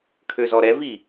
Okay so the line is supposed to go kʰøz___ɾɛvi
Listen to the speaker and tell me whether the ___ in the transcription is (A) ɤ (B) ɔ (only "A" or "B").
B